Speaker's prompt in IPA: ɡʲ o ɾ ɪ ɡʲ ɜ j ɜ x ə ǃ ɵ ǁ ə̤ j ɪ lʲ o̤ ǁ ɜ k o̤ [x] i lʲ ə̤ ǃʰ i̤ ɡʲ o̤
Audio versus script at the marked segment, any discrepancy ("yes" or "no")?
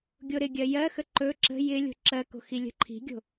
no